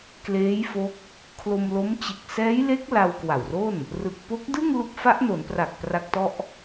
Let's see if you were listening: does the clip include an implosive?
no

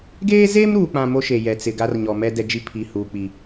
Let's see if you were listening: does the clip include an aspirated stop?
yes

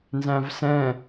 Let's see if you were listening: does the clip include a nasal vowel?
yes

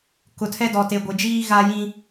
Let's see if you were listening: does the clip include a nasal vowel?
yes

